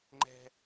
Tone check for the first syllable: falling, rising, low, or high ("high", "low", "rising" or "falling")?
high